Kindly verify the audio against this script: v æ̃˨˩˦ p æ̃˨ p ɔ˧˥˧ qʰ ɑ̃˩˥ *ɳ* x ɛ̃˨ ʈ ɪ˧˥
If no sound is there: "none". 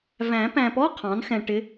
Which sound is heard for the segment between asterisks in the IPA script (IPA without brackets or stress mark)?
n